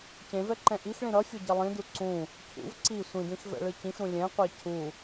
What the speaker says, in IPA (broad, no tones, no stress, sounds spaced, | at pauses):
c ẽ v ɛ ǃ ɛ̃ ʔ i x ɭ ĩ ɾ ʌ fʲ o ɟ ʌ lˠ ĩ d u ǀ ũ | cʰ ṵ v ǀ i sʷ ĩ d ĩ x v ɛ̰ ɭ ɯ c ĩ x ɾ ũ lʲ ɛ̃ qʷ a cʰ u